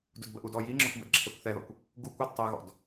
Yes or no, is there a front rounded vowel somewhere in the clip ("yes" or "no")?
no